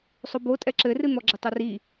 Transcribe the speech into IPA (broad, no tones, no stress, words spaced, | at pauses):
sˤobo tʼɛǁɘrɨ n̪ɔɡ͡ǁɘtˤuri